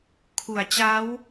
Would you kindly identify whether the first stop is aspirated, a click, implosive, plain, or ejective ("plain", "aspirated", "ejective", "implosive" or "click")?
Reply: aspirated